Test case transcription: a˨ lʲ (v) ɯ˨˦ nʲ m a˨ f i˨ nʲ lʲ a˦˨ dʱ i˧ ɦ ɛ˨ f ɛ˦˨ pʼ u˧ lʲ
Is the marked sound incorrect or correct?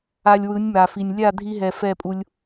incorrect